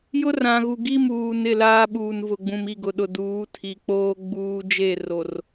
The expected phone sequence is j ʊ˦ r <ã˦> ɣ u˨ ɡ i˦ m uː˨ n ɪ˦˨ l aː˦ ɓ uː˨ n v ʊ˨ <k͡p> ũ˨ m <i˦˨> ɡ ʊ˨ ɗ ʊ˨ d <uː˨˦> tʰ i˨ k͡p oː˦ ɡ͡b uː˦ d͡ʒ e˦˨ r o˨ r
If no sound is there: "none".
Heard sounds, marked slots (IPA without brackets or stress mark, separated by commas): ã˨, ɡ͡b, i˦˨, uː˨˦